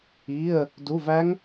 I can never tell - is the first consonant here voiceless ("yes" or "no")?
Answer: no